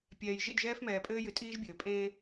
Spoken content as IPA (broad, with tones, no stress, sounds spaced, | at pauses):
pʲ ɛː˨ j ʒ ḭ˦˨ d ʒ ɛː˦ f m ɛː˨ pʼ ɘː˦ j ɨ˨ tʼ iː˦ ʒ bʲ ɘː˨ pʼ ẽː˦